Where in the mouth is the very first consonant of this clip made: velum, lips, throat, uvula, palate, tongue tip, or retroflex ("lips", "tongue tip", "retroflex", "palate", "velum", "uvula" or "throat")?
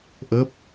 throat